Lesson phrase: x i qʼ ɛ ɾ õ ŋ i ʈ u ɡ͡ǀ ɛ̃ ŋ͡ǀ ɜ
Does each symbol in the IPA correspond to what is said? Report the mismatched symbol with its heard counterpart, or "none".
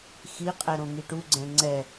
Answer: ɜ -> ɛ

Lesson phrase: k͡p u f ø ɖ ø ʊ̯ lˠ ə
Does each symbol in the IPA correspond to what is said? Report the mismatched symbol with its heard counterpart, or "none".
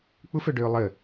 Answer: none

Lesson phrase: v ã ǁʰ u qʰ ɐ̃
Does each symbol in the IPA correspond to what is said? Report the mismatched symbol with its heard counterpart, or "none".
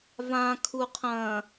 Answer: ǁʰ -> kʰ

